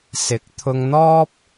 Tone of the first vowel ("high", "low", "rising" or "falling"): rising